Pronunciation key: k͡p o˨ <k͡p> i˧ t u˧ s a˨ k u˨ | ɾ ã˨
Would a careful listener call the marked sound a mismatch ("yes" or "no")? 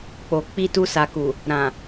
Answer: no